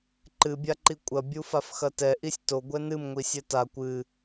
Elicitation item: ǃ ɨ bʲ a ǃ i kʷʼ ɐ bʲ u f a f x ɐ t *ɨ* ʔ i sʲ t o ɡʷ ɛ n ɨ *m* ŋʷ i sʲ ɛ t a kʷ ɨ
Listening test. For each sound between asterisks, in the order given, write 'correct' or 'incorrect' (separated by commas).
incorrect, correct